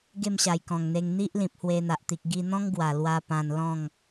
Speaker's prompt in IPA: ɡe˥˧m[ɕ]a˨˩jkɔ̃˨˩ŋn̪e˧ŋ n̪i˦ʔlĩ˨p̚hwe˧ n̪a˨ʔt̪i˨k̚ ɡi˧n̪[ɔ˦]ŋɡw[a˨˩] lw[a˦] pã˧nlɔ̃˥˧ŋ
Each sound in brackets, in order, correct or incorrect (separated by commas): correct, incorrect, correct, incorrect